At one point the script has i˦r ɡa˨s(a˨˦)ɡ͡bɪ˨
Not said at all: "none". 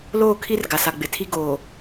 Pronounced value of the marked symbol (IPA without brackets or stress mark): a˨